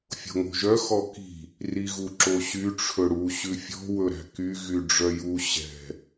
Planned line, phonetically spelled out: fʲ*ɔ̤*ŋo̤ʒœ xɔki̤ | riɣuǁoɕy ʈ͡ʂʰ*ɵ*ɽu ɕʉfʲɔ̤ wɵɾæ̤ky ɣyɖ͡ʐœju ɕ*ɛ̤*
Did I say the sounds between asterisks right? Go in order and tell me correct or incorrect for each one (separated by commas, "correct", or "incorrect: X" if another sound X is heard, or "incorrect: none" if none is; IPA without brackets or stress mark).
incorrect: o̤, correct, correct